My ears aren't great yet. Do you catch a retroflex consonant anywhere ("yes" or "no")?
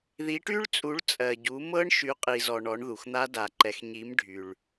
yes